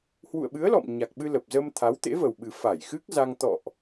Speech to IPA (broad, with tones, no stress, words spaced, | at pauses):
hwṵ˧˨ə̯ɓɨ˨˦ə̯lɔ̰˧˨m ɲa˨˩k̚ɓɨ˧ lə˨˩p̚zə˧mt̪ʰa˨˦w t̪ḛ˧˥və˨˩wɓɨ˨˩ fa˧˩jxɨ˦˥k̚za˧ŋ t̪ɔ̰˧˨ʔ